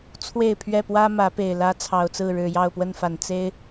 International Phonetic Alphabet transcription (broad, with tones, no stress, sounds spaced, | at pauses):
t͡sʰ w e˥˨ ɪ̯ pʰ ɥ ɛ˥˨ p w ä˦ m ä˨˦ p e˨˩ ɪ̯ l ä˦ t͡sʰ ɑ˨˩ ʊ̯ t͡s ɹ̩˥˨ ɻ ɻ̩˨˩ j ɑ˥˨ ʊ̯ p w ə˥˨ n f a˨˩ n t͡s e˦ ɪ̯